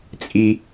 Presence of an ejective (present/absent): present